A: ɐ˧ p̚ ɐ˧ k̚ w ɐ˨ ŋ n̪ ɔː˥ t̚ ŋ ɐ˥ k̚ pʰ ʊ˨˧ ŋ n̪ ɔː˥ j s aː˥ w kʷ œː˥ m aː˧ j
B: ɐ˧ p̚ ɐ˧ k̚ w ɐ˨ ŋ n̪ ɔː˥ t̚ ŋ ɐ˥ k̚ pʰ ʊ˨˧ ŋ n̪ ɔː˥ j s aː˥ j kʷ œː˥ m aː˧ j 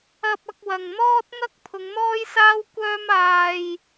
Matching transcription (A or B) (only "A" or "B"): A